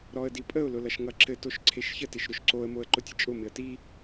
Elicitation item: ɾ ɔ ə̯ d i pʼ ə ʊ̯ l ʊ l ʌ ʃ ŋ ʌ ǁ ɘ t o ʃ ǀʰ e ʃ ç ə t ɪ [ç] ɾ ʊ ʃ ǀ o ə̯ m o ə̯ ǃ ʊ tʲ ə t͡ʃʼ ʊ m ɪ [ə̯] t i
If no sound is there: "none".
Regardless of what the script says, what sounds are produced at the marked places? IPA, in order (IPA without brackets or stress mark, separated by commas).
ʃ, ə̯